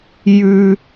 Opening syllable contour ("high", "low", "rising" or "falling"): high